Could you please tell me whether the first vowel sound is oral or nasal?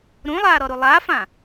nasal